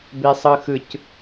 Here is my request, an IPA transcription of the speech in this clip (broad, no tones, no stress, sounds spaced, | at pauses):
b e sˤ ɯ x ɯ c